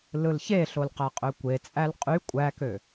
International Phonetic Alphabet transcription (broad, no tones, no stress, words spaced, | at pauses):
lɯlçeɬol qæqʼøkʷet͡sʼæl qʼy kʷʼækø